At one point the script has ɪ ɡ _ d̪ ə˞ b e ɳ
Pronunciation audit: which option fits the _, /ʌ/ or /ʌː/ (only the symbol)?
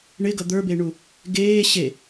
ʌ